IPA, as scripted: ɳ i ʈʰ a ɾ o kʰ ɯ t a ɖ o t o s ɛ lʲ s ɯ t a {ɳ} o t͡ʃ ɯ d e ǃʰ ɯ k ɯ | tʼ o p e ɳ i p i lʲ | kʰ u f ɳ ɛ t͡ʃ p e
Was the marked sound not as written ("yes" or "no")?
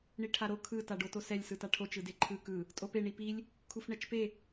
yes